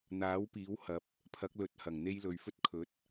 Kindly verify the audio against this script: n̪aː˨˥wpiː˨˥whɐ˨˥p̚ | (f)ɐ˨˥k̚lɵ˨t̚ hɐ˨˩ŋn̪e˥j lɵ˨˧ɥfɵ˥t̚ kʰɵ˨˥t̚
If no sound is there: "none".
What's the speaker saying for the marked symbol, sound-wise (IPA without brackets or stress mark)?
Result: pʰ